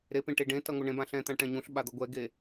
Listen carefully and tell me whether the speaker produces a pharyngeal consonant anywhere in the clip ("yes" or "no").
no